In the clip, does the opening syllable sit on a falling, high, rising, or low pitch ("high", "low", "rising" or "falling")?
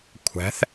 rising